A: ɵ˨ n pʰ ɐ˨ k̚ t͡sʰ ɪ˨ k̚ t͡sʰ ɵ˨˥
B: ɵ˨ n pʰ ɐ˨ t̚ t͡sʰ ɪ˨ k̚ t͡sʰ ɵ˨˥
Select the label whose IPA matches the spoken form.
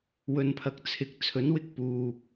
A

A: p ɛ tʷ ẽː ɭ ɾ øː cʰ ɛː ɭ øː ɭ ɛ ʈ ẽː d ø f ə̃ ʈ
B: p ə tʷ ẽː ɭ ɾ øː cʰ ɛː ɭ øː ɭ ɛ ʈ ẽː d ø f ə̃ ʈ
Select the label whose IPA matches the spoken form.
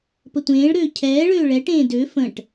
B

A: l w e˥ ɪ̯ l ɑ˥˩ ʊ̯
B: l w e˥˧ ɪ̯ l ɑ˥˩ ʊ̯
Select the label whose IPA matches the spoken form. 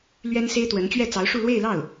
B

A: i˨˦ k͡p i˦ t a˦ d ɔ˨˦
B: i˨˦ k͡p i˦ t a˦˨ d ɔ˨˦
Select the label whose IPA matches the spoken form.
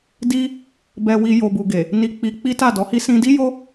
B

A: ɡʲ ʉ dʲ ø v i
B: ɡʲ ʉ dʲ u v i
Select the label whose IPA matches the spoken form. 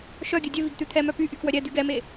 A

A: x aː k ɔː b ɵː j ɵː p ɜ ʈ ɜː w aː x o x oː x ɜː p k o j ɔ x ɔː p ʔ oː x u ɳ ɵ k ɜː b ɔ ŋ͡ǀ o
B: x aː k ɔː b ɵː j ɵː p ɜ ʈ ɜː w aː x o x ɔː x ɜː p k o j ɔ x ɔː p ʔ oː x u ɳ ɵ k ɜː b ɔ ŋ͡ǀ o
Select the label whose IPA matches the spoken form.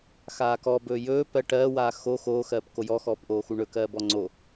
A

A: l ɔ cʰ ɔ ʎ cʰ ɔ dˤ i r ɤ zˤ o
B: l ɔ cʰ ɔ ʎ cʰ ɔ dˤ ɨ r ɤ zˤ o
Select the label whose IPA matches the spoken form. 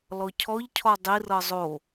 A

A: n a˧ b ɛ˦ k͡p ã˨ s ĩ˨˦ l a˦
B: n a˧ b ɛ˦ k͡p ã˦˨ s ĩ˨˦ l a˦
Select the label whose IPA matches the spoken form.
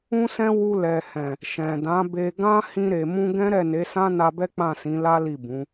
B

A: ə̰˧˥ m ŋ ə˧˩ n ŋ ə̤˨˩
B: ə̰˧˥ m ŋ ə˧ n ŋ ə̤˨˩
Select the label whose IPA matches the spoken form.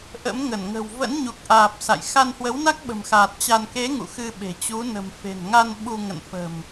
A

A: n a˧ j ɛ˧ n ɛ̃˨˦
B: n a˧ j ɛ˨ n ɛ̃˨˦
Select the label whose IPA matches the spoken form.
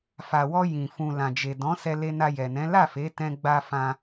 B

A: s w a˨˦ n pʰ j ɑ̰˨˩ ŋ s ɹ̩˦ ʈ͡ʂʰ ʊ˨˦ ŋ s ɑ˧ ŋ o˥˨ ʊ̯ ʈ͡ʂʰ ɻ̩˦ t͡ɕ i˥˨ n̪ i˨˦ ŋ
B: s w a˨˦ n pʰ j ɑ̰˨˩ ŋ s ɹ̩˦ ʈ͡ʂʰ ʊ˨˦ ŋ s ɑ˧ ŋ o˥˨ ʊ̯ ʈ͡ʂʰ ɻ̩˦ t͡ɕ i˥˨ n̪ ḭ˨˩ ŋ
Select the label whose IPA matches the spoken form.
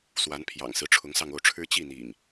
B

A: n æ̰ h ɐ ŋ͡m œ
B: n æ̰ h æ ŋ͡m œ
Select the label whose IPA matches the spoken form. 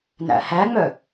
B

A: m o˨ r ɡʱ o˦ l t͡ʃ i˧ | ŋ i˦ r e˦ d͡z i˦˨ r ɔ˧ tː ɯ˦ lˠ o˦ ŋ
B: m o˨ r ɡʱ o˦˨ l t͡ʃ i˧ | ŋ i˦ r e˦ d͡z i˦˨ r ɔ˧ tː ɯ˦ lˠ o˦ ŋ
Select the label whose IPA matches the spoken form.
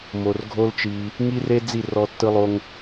A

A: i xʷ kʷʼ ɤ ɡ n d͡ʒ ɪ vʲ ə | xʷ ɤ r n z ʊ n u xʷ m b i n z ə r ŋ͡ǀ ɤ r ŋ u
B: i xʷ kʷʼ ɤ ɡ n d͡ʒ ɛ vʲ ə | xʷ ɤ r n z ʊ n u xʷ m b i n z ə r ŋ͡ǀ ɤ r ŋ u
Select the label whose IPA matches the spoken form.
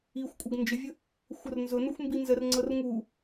A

